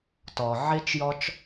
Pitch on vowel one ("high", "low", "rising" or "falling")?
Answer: low